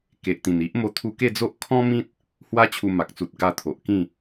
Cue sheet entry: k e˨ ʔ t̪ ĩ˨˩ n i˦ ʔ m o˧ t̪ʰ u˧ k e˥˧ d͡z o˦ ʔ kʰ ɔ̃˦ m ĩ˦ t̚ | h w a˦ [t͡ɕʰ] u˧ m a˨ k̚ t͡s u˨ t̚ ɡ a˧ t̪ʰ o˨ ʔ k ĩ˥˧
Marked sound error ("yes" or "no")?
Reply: no